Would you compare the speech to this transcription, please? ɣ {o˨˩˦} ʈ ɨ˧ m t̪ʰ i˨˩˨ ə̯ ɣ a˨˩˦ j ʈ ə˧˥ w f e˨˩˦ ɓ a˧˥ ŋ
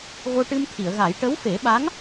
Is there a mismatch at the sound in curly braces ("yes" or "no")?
yes